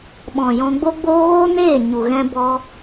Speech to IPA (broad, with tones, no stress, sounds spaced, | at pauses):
ɓ ɔ̃˨ j ɔ̃˧ ɡ͡b o˦ ɡ͡b oː˦ ɣ oː˦ n eː˦˨ ɲ u˨ ɣ ɛ̃˧ b ɔ˧